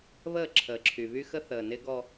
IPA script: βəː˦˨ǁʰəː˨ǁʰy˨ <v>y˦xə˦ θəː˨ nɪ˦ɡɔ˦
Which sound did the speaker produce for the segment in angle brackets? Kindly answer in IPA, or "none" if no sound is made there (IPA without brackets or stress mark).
β